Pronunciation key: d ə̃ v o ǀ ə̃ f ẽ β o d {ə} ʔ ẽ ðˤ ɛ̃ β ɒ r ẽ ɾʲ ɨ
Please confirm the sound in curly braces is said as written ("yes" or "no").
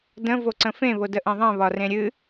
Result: yes